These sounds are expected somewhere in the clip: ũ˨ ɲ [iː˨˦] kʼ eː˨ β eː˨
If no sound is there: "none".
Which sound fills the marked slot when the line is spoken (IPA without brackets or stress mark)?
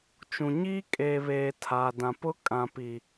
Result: iː˦